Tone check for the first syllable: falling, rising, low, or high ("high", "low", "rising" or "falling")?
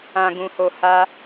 low